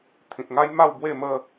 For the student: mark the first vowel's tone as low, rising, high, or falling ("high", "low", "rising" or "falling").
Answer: low